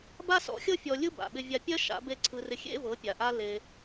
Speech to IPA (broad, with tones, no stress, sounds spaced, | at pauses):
b a˥ s ɔ̰˩˥ xʲ ɤ˥ fʲ ɔ˧ lʲ ɯ˥ b a̰˩ ɓ ɪ˧ vʲ a˧ pʲ ɜ˥ ʃ a̰˩˥ b e˥˩ ǀʰ ɯ˧ r ɪ˧ xʲ ḛ˥ v ɤ˩˥ pʲ a˩ ʔ a˧ l e˧